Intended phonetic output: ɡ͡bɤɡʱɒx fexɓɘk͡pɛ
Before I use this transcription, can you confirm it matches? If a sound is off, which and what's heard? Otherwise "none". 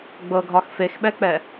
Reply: ɘ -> ɛ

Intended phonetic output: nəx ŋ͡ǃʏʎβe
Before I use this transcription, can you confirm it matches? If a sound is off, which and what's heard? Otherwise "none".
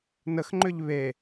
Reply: none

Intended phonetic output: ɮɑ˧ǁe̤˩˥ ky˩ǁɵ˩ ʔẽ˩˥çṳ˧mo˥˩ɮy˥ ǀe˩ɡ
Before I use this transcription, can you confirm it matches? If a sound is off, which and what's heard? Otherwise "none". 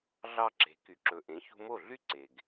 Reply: none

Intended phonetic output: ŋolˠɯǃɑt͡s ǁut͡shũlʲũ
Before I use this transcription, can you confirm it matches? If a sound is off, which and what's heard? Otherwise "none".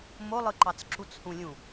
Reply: ŋ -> m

